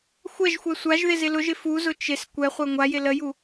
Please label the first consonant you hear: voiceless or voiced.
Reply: voiceless